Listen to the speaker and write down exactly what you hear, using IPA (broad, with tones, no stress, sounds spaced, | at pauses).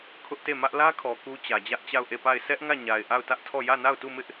kʰ ʊ˦ ʔ t e˦˨ m ä˦ ʔ l ä˦ kʰ ɔ˨ k u˦ t͡ɕ ä˨ d͡ʑ ä˦ ʔ t͡ɕ a˦˨ ʊ̯ ʔ e˦˨ p a˦˨ ɪ̯ s ɛ˦ ʔ ŋ ä˦˨ ɲ a˨ ɪ̯ ʔ a˦˨ ʊ̯ t ä˦ ʔ tʰ ɔ˦˨ j ä˦˨ n a˦˨ ʊ̯ t u˦˨ m ɪ˦ ʔ